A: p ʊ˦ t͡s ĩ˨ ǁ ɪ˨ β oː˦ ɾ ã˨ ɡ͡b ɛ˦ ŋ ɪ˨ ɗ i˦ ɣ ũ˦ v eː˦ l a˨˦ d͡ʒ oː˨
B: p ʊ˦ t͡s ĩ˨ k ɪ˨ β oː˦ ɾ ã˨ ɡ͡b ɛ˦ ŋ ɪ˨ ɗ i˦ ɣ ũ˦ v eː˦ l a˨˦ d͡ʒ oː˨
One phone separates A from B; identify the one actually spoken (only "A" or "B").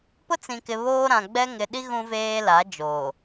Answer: B